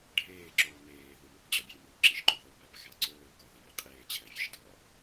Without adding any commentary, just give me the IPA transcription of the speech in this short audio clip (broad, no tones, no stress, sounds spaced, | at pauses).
ɖʱ eː ǁ oː m eː ð u m ɒ p d͡ʑ ɒ bʲ e m i u̯ ǁ i ʃ ǃ u ð o p æ p ɣ æ ǀ oː k ɒ ð iː qʼ eː t͡ɕʰ æ vʲ e ʃ d ɒ